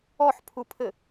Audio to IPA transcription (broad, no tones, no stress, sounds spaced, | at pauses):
ɔ ħ pʰ u pʰ ɘ